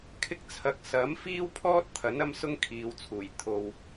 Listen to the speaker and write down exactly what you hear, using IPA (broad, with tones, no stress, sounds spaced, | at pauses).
kʰ ɪ˥ k̚ t͡sʰ ɐ˧ k̚ s ɐ˨˥ m f iː˥ w pʰ ɔː˥ t̚ t̪ʰ ɐ˨˥ n ɐ˥ m s ʊ˥ ŋ kʰ iː˨ w t͡sʰ uː˨˩ j t̪ʰ o˧ w